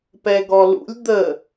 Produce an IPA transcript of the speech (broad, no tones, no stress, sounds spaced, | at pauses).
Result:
p ɛ ɡ ɔ l ṵ lʲ d̪ ə